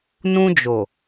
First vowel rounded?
yes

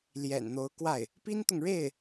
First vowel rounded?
no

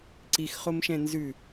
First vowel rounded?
no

